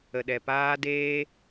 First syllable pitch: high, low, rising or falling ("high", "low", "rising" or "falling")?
low